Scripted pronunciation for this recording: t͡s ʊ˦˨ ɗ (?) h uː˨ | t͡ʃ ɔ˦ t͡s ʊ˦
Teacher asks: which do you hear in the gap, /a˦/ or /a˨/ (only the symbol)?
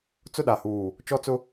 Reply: a˨